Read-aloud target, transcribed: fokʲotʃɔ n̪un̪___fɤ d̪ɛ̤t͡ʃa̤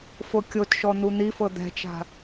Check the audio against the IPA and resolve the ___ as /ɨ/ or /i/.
i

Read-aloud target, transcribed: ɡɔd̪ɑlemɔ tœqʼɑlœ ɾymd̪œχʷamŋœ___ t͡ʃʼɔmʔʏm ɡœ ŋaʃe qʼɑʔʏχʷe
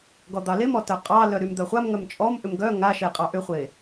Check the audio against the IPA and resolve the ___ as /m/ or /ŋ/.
m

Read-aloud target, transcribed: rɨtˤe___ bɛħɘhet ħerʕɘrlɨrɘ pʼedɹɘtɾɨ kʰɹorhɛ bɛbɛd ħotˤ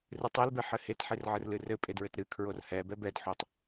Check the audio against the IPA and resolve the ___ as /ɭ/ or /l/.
l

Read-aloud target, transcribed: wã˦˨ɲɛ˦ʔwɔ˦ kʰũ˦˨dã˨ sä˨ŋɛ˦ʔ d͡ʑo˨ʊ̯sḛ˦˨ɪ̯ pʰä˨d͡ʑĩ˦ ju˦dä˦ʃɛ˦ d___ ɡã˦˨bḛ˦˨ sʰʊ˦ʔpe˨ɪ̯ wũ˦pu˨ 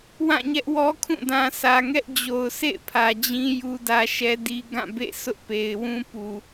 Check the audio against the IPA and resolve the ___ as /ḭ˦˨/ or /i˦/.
i˦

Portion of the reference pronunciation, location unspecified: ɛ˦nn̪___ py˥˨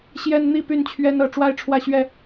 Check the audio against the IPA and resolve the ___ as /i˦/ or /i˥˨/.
i˥˨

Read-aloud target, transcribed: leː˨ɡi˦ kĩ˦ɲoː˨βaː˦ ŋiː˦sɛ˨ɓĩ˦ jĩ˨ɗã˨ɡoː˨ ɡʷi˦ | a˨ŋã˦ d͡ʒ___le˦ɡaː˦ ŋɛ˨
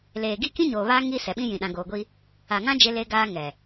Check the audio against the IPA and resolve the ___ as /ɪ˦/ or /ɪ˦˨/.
ɪ˦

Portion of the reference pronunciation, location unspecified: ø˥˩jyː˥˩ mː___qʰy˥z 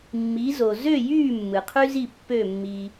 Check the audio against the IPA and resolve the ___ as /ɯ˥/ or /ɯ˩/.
ɯ˩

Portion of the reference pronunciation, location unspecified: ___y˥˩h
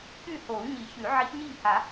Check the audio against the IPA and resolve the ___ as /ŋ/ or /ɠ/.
ɠ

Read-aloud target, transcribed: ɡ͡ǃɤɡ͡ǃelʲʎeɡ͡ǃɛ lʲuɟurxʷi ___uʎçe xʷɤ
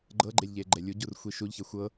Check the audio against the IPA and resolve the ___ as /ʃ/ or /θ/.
ʃ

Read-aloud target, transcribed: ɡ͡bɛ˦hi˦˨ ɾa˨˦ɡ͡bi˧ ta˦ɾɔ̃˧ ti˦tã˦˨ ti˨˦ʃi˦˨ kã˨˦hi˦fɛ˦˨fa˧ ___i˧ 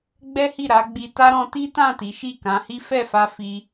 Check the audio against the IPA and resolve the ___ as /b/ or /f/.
f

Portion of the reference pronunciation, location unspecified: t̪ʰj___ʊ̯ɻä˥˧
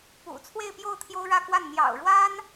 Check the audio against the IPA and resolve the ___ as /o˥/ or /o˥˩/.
o˥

